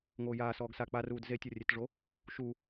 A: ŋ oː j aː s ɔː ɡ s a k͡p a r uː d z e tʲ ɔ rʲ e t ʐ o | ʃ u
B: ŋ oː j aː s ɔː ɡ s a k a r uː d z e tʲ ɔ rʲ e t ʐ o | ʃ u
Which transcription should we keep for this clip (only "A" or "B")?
A